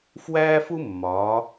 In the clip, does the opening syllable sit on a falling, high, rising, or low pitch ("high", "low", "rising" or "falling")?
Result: high